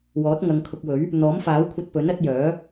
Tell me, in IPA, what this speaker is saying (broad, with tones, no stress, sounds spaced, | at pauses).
w ɔː˨˥ t̚ ŋ ɐ˨˧ ŋ kʰ ʊ˧ k̚ w ɵ˨˥ ɥ | n̪ ɔː˨˥ m f aː˨˥ w kʷʰ ɐ˧ t̚ p ɵ˨˥ n ɐ˨˥ t̚ j œː˨˥